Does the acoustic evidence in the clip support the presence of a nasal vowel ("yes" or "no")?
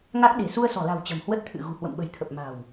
no